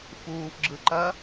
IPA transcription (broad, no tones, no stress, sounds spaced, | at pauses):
f uː f ɡ͡ǁ ɯ ǃ ɐ